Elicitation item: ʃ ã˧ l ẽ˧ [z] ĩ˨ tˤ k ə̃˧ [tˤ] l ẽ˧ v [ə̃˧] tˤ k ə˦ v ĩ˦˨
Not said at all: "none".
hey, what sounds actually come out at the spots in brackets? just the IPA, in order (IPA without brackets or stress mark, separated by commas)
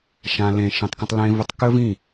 ʃ, tˤ, ə˧